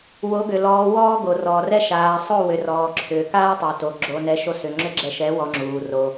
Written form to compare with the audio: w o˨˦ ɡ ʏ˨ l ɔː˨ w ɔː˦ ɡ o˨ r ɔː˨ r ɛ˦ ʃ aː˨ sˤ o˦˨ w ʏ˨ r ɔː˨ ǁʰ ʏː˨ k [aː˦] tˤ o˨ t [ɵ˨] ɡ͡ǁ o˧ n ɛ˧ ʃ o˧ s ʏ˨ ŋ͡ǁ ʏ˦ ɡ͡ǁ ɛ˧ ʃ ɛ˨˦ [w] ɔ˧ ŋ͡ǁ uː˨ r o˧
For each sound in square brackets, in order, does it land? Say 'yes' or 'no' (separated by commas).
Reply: yes, no, yes